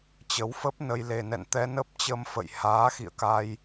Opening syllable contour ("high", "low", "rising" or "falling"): rising